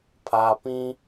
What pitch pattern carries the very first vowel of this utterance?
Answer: low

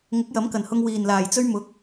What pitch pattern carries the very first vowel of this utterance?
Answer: rising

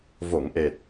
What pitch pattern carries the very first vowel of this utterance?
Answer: low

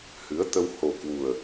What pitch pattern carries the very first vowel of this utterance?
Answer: rising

